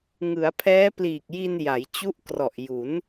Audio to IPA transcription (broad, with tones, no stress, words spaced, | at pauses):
ŋɯ˩˦a̯pʰɛː˦˥pliː˨˩k̚ ji˧nja˩˦jt͡ɕu˦˥ʔ krɔ˨˩ʔju˩˦n